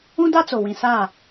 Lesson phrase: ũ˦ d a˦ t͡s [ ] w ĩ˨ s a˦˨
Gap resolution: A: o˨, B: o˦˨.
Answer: A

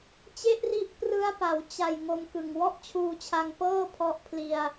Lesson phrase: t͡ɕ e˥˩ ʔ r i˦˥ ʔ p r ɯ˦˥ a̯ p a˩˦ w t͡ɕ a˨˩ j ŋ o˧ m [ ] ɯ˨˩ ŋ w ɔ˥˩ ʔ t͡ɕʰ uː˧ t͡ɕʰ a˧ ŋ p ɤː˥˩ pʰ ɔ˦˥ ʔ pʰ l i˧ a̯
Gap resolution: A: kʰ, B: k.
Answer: B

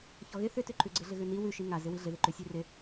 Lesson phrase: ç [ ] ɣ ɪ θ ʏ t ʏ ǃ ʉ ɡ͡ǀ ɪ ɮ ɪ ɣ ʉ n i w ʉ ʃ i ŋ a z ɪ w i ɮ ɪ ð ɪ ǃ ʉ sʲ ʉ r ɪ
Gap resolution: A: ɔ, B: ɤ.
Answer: A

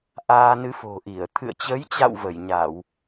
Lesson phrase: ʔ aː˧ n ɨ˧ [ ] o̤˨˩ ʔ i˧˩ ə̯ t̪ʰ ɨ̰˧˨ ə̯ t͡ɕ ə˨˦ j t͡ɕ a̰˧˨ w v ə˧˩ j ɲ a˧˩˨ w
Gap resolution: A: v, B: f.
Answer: B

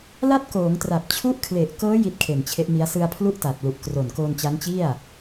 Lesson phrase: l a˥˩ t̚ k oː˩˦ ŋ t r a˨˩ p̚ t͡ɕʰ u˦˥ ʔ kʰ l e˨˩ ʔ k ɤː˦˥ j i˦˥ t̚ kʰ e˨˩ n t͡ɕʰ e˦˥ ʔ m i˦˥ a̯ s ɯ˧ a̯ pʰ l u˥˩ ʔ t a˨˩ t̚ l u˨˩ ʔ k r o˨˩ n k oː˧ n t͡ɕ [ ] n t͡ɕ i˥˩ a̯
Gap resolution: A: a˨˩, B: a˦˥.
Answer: B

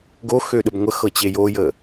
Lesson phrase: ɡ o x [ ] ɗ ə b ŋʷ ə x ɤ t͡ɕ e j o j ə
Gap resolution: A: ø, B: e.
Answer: A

